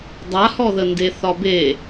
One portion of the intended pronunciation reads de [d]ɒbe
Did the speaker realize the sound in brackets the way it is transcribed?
no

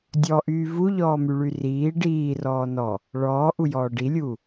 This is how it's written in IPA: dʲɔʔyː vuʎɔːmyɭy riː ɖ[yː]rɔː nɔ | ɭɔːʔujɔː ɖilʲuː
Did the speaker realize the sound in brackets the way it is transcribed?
no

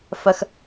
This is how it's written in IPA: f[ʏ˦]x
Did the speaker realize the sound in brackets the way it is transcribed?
no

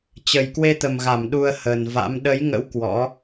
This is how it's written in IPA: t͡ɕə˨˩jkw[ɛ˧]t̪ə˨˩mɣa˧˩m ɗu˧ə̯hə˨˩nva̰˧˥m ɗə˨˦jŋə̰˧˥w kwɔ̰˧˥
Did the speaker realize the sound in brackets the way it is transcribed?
no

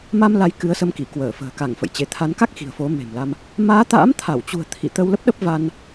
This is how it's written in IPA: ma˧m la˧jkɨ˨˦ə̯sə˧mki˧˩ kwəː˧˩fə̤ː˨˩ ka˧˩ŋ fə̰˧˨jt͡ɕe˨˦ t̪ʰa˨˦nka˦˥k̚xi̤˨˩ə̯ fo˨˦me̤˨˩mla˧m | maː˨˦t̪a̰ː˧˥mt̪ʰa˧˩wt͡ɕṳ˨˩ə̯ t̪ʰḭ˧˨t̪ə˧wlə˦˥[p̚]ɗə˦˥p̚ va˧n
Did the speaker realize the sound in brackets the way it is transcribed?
yes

